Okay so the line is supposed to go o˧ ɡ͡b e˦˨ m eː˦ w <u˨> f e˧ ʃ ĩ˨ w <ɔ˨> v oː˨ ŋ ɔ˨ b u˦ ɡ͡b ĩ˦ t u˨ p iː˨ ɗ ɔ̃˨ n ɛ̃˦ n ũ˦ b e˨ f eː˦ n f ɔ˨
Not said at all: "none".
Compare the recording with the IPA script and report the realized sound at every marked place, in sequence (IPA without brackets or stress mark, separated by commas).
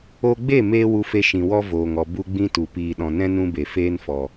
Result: u˧, ɔ˦